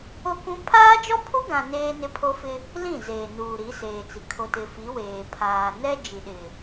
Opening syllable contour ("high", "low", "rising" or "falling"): high